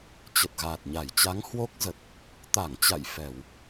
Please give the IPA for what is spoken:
t͡ɕ ə˨˩ t̚ ɣ aː˨˩ t̚ ɲ a˧˩ j t͡ɕ a˨˦ ŋ h w o˦˥ k̚ z ə˨˩ t̚ | t̪ a˧˩ ŋ t͡ɕ a̰˧˨ j f ɛ˧˩˨ w

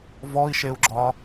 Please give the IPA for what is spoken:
v ɔ i̯ ʃ e u̯ ɡ͡ǁ ɒ

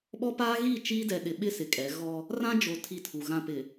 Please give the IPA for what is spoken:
ɓ ɔ˦ p aː˦ ɣ i˦˨ t͡ʃ iː˦ d ɛ˨ ɗ ɪ˨ ɓ ɪ˦ s ɪ˨ kʼ ɛ˨˦ ɣ ɔ˦ | r ã˦ d͡ʒ o˨ tʰ i˦˨ tʰ u˨ ɣ ã˨ p ɪ˨

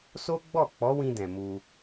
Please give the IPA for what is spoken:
s o˦ ɡ͡b ɔ˦˨ k͡p ɔ˨˦ w ĩ˧ d ɛ̃˨ m u˧

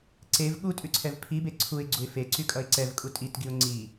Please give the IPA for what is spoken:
ǀ e v ɠ u tʼ ʉ ǀʰ ɛ v pʰ i b e ǀʰ u ɪ̯ ɡ͡ǀ u ɪ̯ f e ǀ y kʼ ʌ ɪ̯ ǀ ɛ v kʼ u tʼ i t ɡ i ʊ̯ ŋ͡ǀ i

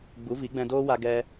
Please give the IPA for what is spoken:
ɡ͡b u˨˦ v i˨˦ ɡ͡b ɛ̃˧ d oː˦ w a˧ ɡ ɛ˧

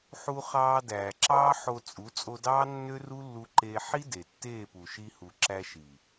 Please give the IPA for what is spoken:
ħ u˧ χ ɑː˧ d æː˨ ǁ ɑː˦ ħ o˧ t͡sʼ u˨˦ t͡sʼ o˧ d ɑː˦ nː ø˦ r u˦ lː u˧ ǃ eː˧ ħ i˦ d e˨ tː eː˦˨ p u˨ ʃ i˧ h u˨ ǁ æ˧ ʃ i˨

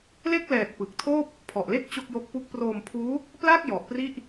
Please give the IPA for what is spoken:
l e˥˩ k̚ l ɛː˨˩ t̚ p ɯ˨˩ k̚ tʰ oː˥˩ p̚ | pʰ ɔ˨˩ ʔ l e˥˩ k̚ t͡ɕ o˥˩ k̚ j o˦˥ k̚ p u˦˥ k̚ p r oː˧ m pʰ uː˦˥ | p l a˥˩ k̚ j ɔ˨˩ ʔ p r i˥˩ ʔ

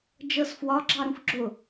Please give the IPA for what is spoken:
d͡ʒ ɤ s f w ɒ ɡ͡ǁ ɑ ɾ ũ f ɡ͡ǁ ʊ

